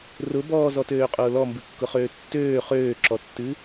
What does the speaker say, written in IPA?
rʊ bɔːzɔtøːqʼʊː lɔmbɨkːʊχøː tːøː χøːǁɔtːɨ

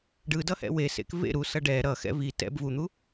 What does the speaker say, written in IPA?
ɖɯdʌhɛ̰ wesḛk vḛ ɾusʌ ɖɛ ɾʌxɛ̰ vi tɛ̰b vun̪u

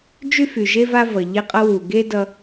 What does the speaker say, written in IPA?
d͡ʒy˥fy˩ʒe˥ va˥vʌ˩ ʎe˧qʼʌ˧wu˩ ɡe˥ dʌ˧

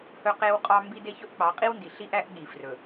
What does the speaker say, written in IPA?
hɵ˦qe˦wqʼɑ˦ mbi˦de˦ çɵ˦ʔk͡pɑ˨˦qʼi˦wndi˨ ɬi˦ʔæ˦ʔ ɠi˨frɵ˨

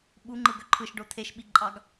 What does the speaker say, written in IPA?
ɓuŋ͡ǃɯɡø ǃʰɯʃɖo t̪ʰeʃɓiǃʼɑɡ

